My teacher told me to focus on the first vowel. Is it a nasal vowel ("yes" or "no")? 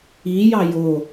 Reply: no